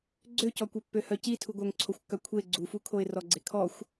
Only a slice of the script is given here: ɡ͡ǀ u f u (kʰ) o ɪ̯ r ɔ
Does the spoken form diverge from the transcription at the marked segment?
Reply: no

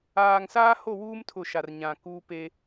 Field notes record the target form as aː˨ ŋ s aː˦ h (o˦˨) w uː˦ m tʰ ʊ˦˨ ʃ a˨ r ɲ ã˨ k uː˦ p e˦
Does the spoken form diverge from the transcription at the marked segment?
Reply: no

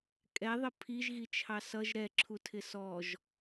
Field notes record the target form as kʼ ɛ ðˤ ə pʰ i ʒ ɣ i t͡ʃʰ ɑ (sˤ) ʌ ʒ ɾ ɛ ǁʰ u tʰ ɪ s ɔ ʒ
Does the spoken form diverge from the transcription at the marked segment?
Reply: yes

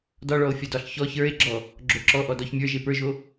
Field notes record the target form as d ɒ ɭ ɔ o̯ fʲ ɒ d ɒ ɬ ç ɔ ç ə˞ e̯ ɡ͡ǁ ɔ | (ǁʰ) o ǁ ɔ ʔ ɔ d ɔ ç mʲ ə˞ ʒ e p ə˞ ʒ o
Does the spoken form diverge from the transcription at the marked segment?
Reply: yes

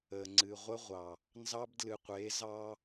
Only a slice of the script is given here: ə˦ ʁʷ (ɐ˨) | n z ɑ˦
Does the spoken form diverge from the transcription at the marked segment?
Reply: yes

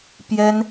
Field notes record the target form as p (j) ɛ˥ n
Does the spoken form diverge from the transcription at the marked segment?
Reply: no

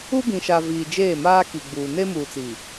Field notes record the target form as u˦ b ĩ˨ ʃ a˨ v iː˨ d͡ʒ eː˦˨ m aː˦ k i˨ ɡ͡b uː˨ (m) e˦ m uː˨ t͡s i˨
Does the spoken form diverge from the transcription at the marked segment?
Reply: yes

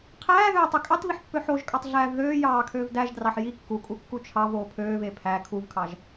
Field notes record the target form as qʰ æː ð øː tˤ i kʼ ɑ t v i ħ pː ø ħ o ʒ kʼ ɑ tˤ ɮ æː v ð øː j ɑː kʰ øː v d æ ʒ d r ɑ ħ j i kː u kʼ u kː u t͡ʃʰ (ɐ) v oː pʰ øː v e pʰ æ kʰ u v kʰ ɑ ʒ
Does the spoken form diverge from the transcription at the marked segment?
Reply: yes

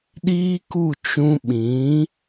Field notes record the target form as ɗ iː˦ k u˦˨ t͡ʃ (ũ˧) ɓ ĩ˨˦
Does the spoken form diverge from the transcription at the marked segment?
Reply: no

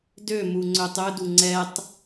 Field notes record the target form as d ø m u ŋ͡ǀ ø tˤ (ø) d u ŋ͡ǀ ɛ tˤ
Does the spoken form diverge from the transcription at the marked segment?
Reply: no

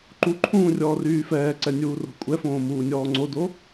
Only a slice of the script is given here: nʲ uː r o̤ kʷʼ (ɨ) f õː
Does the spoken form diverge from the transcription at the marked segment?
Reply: yes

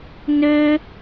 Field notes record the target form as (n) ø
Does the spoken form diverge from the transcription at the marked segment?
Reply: no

